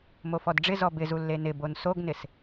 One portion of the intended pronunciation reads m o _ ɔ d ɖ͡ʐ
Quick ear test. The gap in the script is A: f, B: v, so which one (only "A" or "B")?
A